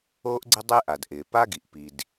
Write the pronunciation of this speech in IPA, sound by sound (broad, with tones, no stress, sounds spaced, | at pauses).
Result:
oː˥ ʔ ɡ͡ǀ ɪ˥ dˤ ɪː˥ ʔ a˩ d ʔ ɪː˩ p a˥ ɡ i˩ ʔ p i˩ d